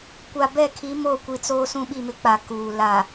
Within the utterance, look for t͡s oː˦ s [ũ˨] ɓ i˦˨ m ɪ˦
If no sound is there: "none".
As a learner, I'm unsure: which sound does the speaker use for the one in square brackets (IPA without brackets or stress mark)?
ũ˦